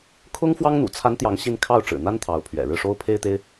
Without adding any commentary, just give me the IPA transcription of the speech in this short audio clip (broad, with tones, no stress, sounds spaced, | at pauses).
kʰ ʊ˥ ŋ f w ɑ˥ ŋ n̪ ṵ˨˩ t͡sʰ a˧˥ n t̪ j ɑ˧˥ ŋ ɕ i˥˧ n kʰ ɑ˥˩ ʊ̯ ʈ͡ʂ ɻ̩˨˩ n̪ a˥ n t̪ʰ ɑ˧˥ ʊ̯ pʰ ɥ ɛ̰˨˩ ɻ ɻ̩˥˩ ʂ o˥ ʊ̯ pʰ e˥ ɪ̯ t̪ e˥ ɪ̯